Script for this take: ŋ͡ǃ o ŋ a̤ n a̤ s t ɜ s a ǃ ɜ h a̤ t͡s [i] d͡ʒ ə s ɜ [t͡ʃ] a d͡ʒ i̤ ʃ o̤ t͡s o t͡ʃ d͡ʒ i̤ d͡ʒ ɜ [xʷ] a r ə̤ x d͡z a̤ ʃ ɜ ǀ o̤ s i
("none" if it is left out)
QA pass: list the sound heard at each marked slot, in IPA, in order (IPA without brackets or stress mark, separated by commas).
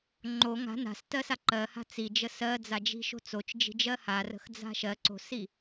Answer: i, d͡z, h